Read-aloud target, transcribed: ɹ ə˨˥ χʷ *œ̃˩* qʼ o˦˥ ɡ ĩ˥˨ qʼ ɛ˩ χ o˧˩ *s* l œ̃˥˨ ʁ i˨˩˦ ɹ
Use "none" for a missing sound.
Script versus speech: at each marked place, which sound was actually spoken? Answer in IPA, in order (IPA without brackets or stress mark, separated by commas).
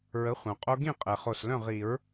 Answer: œ̃˩, s